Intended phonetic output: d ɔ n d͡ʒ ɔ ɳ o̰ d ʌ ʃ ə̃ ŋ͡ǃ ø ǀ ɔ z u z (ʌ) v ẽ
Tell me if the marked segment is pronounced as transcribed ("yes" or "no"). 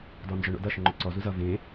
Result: yes